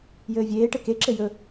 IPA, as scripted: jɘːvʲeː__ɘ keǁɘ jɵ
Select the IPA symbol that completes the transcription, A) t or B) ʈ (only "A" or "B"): B